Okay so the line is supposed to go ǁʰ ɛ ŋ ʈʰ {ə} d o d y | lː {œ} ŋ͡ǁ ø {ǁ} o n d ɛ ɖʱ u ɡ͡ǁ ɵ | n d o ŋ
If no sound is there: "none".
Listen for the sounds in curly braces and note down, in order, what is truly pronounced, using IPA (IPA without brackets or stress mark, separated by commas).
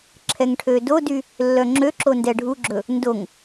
ø, œ, ǁ